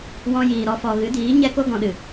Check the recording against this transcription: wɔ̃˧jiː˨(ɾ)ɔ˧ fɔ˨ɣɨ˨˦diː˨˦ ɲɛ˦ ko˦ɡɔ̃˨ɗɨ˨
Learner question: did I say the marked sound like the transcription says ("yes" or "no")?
yes